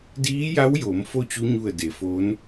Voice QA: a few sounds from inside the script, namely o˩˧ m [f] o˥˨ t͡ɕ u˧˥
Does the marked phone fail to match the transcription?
no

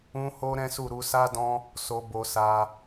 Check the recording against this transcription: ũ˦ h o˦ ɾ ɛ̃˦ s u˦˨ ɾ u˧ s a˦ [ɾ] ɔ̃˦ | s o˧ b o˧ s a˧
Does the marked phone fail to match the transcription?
yes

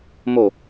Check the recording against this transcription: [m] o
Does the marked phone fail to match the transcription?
no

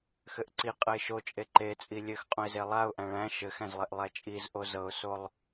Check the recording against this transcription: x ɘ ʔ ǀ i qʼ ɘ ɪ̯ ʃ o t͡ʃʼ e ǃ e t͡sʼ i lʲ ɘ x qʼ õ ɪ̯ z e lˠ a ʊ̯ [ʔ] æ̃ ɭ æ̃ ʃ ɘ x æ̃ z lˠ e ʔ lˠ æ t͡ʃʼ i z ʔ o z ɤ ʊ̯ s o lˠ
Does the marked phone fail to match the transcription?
no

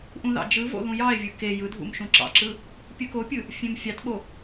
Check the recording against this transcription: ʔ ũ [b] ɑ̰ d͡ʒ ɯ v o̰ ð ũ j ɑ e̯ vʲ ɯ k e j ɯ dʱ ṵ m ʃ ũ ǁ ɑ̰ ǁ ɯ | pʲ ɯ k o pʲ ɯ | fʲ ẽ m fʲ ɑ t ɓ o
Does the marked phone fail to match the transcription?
yes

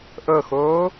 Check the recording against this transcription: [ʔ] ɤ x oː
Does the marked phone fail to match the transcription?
no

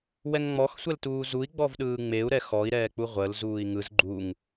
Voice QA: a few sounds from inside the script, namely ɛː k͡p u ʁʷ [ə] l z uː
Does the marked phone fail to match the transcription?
no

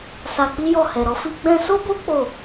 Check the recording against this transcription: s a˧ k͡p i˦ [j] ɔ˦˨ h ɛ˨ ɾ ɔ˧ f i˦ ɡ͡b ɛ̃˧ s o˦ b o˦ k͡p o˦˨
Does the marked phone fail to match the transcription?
no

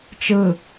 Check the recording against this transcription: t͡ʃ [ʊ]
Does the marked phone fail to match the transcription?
yes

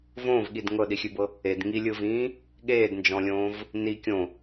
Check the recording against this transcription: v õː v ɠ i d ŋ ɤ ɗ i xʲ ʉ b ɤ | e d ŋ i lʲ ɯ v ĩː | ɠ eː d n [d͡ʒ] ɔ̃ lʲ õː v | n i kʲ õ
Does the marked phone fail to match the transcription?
no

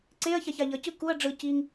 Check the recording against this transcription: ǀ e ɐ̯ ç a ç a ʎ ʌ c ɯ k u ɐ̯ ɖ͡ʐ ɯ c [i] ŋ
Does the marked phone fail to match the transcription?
no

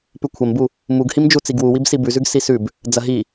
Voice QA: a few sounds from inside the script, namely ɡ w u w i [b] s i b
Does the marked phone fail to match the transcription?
no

